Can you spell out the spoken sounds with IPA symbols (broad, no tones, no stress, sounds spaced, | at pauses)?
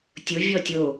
tʲ ʊ vʲ ɔ tʲ o